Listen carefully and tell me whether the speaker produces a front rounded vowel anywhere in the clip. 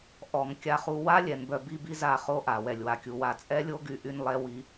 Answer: yes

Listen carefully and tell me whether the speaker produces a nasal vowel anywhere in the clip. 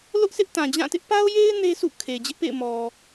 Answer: yes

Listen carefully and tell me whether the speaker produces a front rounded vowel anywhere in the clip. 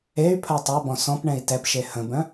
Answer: yes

